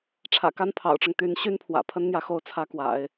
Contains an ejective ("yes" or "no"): no